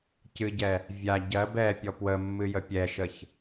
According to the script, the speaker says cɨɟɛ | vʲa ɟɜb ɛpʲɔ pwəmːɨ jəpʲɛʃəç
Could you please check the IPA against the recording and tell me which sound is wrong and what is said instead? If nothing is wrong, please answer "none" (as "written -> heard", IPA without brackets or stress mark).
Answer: none